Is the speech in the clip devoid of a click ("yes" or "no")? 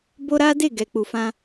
yes